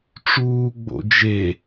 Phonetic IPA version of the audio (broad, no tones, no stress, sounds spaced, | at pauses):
ʈ͡ʂ uː ɡ͡b o̰ d͡ʒ e